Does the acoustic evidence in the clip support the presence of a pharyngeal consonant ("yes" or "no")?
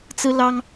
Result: no